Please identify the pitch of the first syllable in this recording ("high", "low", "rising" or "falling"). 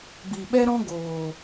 low